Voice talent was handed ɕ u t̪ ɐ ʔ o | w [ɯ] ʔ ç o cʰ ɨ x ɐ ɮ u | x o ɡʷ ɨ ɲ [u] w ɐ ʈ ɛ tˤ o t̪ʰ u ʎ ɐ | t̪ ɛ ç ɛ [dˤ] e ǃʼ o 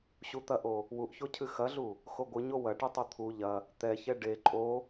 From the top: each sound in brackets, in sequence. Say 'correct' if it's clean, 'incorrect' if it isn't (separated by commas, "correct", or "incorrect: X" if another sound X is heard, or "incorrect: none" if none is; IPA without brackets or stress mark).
incorrect: u, incorrect: o, incorrect: ɖ